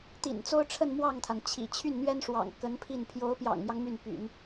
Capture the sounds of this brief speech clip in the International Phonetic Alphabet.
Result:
t̪ ḭ˨˩ n t͡s o˥ ʊ̯ ʈ͡ʂʰ ə˥˧ n m w ɑ˥˩ ŋ t̪ʰ a˩ n t͡ɕʰ ḭ˨˩ t͡ɕʰ y˥˩ n n̪ ɥ ɛ˥ n ʂ w ɑ̰˨˩ ŋ k ə˧˥ n pʰ i˥˩ n pʰ j o˧˥ ʊ̯ p j ɑ̰˨˩ ŋ m j ɑ˦ ŋ m y˥˩ n p y̰˨˩˦ n

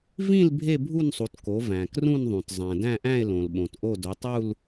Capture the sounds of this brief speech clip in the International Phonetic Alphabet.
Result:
v ĩ˥˧ l bʱ e˥˧ bʱ u˥˧ n sˤ u˩˧ t k o˩˧ v æ̃˩ k r ũ˥˧ n ðˤ ũ˩ t zˤ æ̃˩ d æ̃˥˧ ʔ æ̃˥˧ e̯ l õ˩ l ɓ õ˩ t ʔ o˥˧ d o˩˧ tˤ u˥˧ l

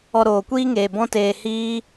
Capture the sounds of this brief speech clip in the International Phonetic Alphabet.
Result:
ɔ˧ ɾ oː˨ kʷ iː˦ ŋ eː˨ b ɔ̃˦ t eː˧ h iː˦

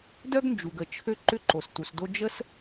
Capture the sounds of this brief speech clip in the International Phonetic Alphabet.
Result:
d œ˥ ɡ n d͡ʒ u˩ ɡ ə˩ t͡ʃʰ ø˥ ǃ ʏ˥ ǃ o˩ s t u˩ s d o˥ d͡ʒ ə˥ s

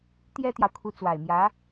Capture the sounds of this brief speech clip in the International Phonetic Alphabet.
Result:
t̪ j ɛ˥ t̪ j ɑ˨ ʊ̯ kʰ u˧˥ t͡s w a˨˩ ɪ̯ m j ä˧˥

